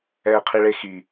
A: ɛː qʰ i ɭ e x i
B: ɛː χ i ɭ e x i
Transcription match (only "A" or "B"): A